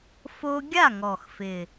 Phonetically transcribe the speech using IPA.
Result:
f o˦ ɡʲ a˥˨ ŋ ɔ˨˩ x f ɪ˨˩

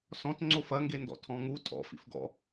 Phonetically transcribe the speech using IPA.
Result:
s ɔ̃ t ŋ͡ǀ o f ɐ ŋ ɡ e n d ɔ̰ tʰ ɔ̃ ŋ u tʼ ɔ̰ f ḭ f ɡ ɔ̰

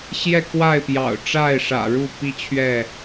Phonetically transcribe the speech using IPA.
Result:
ɕ j ɛ˥˨ k w a˥˨ ɪ̯ p j ɑ̰˨˩ ʊ̯ ʈ͡ʂ a˥˨ ɪ̯ ʂ ä̰˨˩ ɻ u˥˨ p i˦ t͡ɕʰ ɥ ɛ˥˨

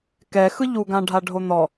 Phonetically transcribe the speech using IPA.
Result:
k ɛ x ɯ ʎ u ɡ ã ɖʱ a ɖʱ o n̪ ɔ

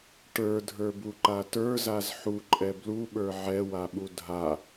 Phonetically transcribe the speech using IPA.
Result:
ʈ ə˞ dʱ ə˞ b u ǃ a t ə˞ z a z ħ u ǃʼ ɛ b l u ɓ ə˞ ʕ ɛ w a ɓ u dʱ a

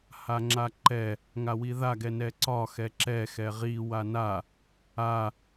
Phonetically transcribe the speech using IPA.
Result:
h a ŋ͡ǁ a ǃ ɛ | ŋ a w i ð a ɡ ɛ n ɛ ǀ ɒ x ɛ ǁ ɛ x ɛ ʁ i w a n a | a

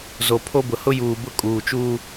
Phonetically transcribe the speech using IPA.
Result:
z o˨ pʰ o˦ b ʊ˨ h ʊ˦ j uː˨ b ʊ˦ kʼ uː˨ t͡ʃ uː˦

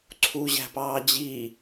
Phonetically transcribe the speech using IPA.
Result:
ǀʰ u ʑ æ̤ p ɑː d͡ʑ i

